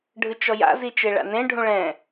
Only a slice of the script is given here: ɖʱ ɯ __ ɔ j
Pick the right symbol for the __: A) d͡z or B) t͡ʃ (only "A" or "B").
B